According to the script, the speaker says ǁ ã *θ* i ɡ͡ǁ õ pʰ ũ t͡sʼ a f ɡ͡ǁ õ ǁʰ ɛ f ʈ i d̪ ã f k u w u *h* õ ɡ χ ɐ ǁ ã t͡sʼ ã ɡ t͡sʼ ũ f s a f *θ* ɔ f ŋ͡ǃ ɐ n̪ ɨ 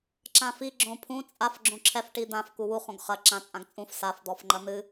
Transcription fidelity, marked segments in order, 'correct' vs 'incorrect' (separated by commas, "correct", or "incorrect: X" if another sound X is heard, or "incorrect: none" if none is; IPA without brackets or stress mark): incorrect: f, incorrect: χ, incorrect: d̪